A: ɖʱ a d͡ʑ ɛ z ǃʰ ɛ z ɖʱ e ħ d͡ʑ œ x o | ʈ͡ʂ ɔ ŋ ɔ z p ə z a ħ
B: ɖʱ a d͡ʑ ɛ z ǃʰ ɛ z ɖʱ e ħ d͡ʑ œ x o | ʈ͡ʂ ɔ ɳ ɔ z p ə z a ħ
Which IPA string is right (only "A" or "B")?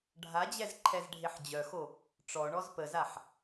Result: B